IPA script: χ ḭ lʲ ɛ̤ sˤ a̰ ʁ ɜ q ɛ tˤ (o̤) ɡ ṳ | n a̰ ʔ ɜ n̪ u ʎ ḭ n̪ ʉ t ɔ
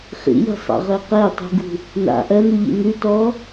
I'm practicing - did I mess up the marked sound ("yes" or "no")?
yes